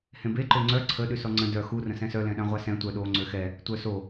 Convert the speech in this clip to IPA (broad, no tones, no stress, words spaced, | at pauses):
hẽbe ǃøŋ͡ǀœ ǀʰə ɗysɔŋ͡ǀə̃ dœ xu rə̃sɛ̃sœ lɛ̃ɗãʁʷasɛ̃ tʷœɗo ŋ͡ǀøxɛ | tʷœso